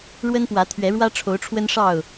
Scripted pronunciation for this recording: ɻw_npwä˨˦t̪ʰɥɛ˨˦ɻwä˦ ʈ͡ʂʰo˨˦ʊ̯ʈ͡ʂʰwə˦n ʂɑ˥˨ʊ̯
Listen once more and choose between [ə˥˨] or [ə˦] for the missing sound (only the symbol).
ə˦